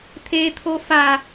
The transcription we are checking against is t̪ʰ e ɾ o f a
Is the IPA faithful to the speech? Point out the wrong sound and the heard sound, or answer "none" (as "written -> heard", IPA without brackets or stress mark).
ɾ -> t̪ʰ